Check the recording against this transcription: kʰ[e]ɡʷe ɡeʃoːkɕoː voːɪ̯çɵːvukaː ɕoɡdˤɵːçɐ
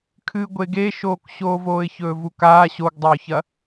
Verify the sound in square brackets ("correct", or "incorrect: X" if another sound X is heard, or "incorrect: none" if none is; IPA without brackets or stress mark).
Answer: incorrect: ɨ